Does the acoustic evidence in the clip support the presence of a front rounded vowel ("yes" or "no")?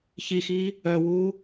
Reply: yes